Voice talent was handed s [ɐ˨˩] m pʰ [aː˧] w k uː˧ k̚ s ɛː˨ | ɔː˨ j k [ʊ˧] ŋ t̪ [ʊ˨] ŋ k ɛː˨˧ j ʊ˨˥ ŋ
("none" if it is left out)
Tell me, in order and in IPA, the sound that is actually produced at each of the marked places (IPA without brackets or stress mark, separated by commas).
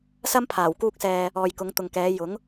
ɐ˥, aː˨˩, ʊ˨˧, ʊ˨